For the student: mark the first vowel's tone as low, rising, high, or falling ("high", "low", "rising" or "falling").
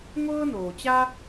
high